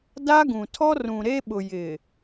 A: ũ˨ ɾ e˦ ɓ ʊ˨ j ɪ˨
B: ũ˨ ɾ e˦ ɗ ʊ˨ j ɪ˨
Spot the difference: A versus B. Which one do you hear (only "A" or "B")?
A